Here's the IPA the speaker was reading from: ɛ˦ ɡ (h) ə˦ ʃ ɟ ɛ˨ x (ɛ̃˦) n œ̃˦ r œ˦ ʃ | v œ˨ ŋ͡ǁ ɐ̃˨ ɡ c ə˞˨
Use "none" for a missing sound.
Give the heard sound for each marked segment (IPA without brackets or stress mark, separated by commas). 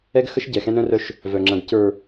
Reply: x, ɛ̃˦